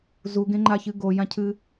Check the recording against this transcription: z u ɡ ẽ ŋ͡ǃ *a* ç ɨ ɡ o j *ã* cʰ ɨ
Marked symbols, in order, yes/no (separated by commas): yes, yes